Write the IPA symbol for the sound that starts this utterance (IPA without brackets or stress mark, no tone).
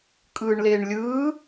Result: kʼ